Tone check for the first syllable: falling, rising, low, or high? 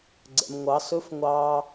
low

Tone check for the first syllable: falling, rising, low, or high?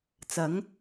rising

